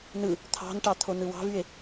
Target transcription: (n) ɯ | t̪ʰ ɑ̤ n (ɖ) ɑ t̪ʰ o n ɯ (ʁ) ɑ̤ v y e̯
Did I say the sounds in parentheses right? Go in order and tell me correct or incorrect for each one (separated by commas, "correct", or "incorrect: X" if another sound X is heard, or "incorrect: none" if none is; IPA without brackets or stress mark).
correct, incorrect: ʈ, incorrect: w